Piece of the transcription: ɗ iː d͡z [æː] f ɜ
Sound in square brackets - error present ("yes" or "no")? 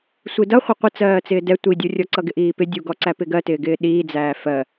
no